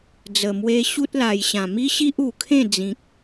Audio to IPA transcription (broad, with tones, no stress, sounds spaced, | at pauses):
d͡z ə˨˩ m w e˧ ɕ u˦ t̚ l a˨˩ j ɕ ã˨˩ m i˦ ɕ i˦ ʔ u˨˩ kʰ ẽ˥˧ d͡z ĩ˨ k̚